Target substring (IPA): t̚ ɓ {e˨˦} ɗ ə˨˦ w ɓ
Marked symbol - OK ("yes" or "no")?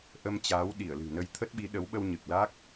no